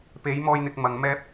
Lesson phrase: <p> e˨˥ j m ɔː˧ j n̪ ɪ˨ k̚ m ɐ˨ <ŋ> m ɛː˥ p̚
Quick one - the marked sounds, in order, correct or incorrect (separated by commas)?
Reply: correct, correct